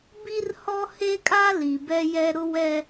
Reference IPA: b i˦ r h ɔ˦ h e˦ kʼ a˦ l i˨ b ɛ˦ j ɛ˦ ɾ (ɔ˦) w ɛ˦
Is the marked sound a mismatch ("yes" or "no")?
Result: yes